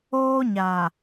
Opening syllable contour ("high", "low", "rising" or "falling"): high